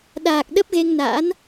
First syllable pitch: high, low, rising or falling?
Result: low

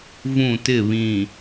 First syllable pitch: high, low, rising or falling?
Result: falling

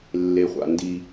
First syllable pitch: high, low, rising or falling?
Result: low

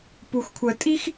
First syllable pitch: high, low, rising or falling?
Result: low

